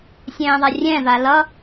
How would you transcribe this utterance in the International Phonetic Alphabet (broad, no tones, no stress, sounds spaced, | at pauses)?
sʲ ɛ̃ː ðˤ a rʲ ɛ̃ː v a l ʌ